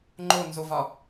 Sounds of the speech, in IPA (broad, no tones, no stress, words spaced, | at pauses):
ŋ͡ǃonzovɒ